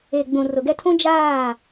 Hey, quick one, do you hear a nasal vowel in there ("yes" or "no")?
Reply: yes